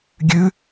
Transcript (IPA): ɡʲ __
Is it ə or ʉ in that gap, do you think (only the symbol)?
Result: ʉ